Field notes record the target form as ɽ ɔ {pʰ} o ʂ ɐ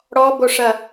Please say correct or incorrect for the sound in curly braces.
incorrect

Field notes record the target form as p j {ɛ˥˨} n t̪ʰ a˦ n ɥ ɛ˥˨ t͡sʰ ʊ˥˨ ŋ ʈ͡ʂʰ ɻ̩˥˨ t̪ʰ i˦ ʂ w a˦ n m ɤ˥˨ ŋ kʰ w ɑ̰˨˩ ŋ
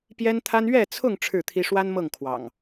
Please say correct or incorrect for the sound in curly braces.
incorrect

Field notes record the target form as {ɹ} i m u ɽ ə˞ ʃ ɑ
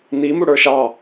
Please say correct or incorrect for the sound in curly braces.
incorrect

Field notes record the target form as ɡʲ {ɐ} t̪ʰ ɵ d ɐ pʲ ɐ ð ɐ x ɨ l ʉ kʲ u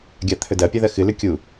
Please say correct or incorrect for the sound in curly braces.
incorrect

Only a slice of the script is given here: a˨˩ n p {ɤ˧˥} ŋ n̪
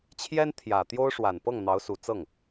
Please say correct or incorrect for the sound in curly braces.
incorrect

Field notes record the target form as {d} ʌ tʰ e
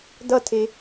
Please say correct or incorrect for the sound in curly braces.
correct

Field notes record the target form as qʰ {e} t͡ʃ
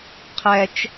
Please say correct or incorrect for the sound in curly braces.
incorrect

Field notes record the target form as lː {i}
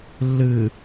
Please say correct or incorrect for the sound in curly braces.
incorrect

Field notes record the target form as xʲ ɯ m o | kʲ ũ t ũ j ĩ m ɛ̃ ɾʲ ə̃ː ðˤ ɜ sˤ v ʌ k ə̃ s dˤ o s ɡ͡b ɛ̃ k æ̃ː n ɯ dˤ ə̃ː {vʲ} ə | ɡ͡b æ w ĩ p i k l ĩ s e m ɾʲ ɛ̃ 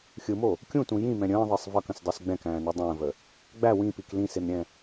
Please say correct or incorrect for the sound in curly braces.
incorrect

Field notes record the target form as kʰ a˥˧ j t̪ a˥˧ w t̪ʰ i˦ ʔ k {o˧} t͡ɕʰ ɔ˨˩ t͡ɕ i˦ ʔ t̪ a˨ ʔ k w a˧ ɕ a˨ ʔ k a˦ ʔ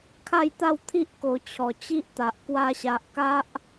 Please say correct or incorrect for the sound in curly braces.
correct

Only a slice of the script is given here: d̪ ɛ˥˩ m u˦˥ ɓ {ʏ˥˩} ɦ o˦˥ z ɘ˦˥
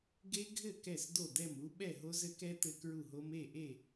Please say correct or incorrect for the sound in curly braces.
incorrect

